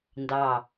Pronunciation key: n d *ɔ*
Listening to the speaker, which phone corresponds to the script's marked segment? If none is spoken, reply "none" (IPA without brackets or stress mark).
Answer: ɑ